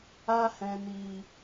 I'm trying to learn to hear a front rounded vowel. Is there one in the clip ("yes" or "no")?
no